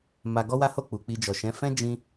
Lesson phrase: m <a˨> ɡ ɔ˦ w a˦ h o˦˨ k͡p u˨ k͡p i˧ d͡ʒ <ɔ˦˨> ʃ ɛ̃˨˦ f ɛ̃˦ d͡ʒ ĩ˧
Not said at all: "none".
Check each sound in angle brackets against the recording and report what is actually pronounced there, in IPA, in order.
a˧, ɔ˨

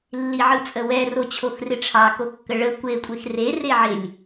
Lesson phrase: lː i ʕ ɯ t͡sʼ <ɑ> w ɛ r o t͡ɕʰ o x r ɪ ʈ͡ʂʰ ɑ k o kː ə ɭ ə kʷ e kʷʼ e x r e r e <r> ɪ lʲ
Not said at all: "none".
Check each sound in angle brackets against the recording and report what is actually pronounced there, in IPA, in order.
ə, ʕ

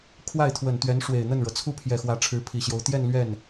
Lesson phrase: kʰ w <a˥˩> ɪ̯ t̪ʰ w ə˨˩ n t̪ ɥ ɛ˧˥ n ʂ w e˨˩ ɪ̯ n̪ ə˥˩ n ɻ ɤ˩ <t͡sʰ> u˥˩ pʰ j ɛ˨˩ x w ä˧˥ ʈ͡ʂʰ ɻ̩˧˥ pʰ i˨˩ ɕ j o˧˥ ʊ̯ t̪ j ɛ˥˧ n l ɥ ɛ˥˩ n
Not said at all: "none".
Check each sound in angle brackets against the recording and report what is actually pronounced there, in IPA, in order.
a˥˩, t͡sʰ

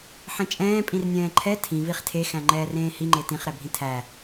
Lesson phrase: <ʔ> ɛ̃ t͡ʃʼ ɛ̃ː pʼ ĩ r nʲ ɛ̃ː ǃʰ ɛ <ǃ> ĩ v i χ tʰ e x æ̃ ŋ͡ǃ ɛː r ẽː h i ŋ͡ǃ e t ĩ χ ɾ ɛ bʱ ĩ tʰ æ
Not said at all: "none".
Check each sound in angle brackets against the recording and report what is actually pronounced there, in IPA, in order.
ħ, tʰ

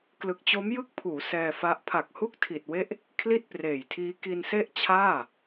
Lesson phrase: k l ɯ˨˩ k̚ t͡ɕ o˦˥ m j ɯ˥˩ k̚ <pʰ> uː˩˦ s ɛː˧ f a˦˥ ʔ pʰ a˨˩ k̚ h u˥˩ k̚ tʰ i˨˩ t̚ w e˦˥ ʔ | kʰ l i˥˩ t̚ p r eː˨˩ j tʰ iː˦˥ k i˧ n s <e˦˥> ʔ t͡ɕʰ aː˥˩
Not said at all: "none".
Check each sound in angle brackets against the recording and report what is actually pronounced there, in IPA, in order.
pʰ, e˥˩

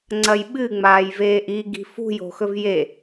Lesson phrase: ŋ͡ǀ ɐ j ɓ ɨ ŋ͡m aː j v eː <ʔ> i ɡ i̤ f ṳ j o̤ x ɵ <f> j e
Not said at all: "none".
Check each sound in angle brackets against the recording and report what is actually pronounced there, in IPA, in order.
ʔ, v

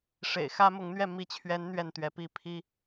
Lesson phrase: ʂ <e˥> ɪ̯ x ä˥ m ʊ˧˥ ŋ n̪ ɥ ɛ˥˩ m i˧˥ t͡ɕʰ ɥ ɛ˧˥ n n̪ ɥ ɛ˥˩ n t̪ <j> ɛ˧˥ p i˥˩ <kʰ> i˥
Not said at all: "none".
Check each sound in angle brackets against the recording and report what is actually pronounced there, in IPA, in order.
ḛ˨˩, ɥ, pʰ

